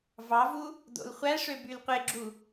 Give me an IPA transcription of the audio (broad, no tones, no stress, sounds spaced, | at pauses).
v ɑ v u | d o̰ l χʷ æ ʂ ø b y l qʷ e ɡ͡ǁ u